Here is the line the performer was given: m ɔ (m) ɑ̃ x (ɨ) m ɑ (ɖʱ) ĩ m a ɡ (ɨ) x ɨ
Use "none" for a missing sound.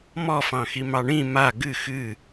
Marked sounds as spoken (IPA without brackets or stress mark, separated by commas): f, i, ɳ, ɨ